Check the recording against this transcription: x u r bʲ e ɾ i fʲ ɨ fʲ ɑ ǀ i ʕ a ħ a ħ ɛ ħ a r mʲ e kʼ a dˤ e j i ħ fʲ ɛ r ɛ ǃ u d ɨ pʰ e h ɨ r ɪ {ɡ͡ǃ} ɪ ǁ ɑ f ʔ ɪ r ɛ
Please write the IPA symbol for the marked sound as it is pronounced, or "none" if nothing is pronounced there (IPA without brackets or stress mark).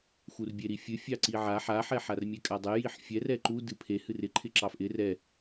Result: ǃʰ